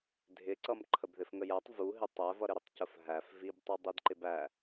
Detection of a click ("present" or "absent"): present